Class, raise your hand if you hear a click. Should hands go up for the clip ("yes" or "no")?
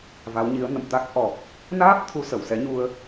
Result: no